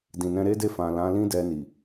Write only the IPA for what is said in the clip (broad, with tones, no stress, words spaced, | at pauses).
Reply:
dĩ˨nɛ̃˧ɾe˦de˦˨ fã˨lã˨˦ lĩ˦dɛ˧ni˨